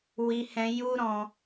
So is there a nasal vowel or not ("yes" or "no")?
yes